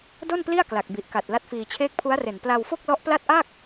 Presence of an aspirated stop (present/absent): present